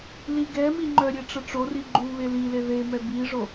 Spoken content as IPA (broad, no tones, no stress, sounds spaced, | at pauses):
l i ɡ ɛ m i ŋ͡ǃ œ ɾʲ e ʈ͡ʂ ə ʈ͡ʂ o r i ɡ͡ǃ u β e l i l e ð e m ɛ b i ʐ o